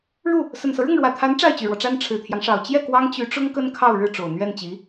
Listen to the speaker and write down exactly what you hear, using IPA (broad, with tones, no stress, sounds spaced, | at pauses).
ɻ u˥˩ | s ə˨˩ n s ɤ˦ ɻ ʊ˥˩ ŋ ɻ w ä˨˩ t̪ʰ a˧˥ n ʈ͡ʂ a˥˩ ɪ̯ t͡ɕ y˨˩ ɻ w ɔ˦ ʈ͡ʂ a˥ n ʈ͡ʂʰ ɻ̩˨˩ t̪ʰ j ɑ˦ ŋ ʂ ɑ˨˩ ʊ̯ t͡ɕ j ɛ˥˩ k w ɑ˥ ŋ t͡ɕ y˧˥ ʈ͡ʂ ʊ˥ ŋ k ə˥ n kʰ ɑ˥˧ ʊ̯ ɻ ɻ̩˥˩ ʈ͡ʂ o˨˩ ʊ̯ n̪ ɥ ɛ˥˩ n t͡ɕ i˧˥